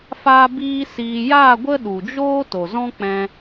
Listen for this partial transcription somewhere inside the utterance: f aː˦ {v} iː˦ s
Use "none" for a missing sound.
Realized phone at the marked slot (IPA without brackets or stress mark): b